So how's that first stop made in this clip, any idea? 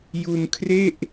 aspirated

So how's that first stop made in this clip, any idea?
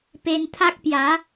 plain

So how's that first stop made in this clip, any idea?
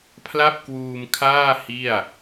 aspirated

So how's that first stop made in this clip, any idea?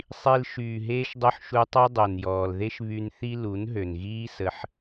plain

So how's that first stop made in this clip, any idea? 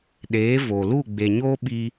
implosive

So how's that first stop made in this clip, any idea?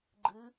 click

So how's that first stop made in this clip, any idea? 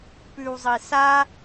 plain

